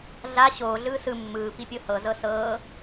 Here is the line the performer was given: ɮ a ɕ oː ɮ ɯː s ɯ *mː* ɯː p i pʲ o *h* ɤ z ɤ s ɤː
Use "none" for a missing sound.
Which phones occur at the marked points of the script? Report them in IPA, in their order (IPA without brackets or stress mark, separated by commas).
mː, h